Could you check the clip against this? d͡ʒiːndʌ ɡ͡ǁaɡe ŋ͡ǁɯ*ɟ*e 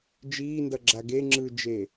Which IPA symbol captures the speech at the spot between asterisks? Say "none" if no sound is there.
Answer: d͡ʒ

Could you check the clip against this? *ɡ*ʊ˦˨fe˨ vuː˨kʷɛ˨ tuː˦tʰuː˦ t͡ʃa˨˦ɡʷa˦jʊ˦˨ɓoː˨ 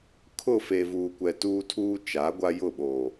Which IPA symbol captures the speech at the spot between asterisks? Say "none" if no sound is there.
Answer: kʰ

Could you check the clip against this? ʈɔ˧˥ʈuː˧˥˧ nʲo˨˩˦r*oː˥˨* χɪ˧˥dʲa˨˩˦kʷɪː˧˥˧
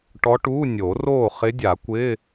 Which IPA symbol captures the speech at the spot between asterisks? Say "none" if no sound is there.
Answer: oː˥˨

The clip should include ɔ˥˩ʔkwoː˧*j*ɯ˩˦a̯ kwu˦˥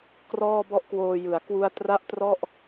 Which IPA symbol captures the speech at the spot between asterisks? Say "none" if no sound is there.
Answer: j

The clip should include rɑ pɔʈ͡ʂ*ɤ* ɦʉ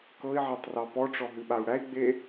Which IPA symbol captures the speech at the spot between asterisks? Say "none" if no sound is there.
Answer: ɔ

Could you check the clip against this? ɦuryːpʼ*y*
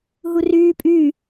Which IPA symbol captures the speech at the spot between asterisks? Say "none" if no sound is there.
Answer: y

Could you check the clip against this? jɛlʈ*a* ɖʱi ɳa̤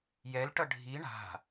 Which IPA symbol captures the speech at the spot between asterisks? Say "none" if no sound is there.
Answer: ʌ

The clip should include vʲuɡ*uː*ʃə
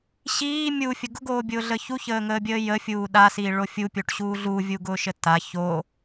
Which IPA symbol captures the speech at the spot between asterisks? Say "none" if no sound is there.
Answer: ʊː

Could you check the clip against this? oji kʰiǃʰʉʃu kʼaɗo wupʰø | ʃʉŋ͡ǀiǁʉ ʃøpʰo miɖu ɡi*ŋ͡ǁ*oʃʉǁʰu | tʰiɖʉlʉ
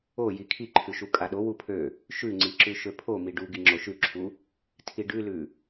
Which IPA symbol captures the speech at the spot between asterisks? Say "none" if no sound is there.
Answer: ŋ͡ǁ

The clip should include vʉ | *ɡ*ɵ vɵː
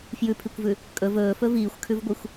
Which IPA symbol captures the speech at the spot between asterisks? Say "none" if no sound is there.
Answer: kʼ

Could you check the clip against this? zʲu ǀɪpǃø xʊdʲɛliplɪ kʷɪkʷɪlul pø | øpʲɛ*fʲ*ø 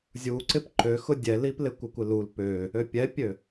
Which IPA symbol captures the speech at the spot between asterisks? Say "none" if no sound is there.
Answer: pʲ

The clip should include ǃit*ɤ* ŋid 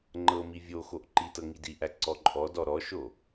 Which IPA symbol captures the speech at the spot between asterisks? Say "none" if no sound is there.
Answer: ɤ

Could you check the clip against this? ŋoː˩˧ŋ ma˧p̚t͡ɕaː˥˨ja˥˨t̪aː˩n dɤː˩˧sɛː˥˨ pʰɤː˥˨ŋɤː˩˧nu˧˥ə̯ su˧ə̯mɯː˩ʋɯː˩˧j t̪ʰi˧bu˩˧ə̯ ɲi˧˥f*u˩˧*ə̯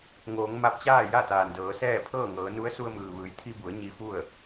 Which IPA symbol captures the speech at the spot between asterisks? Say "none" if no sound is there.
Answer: u˥˨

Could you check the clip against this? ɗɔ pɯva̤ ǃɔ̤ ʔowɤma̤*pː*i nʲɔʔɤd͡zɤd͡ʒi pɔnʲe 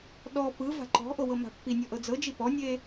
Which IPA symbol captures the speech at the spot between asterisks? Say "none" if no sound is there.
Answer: pː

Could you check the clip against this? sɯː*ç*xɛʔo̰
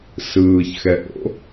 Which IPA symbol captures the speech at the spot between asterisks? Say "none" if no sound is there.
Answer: ç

